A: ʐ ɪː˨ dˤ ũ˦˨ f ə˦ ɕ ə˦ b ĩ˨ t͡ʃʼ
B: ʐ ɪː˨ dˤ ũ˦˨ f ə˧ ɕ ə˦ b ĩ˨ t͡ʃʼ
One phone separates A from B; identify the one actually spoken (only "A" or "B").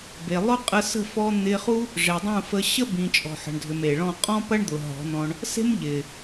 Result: B